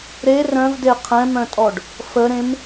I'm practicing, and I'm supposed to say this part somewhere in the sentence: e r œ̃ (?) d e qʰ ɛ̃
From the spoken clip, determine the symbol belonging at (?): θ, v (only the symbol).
v